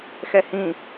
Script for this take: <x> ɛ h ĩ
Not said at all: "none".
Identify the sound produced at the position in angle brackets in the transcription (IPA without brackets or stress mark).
x